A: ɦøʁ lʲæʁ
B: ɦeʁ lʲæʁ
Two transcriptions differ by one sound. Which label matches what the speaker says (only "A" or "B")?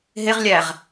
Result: B